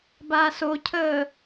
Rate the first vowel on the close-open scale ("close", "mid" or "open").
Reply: open